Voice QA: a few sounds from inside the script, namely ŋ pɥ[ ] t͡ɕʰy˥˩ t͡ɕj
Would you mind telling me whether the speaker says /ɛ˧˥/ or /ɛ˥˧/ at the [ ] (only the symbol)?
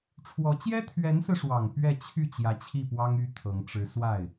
ɛ˥˧